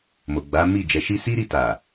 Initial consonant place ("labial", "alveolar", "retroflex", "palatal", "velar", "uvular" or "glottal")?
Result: labial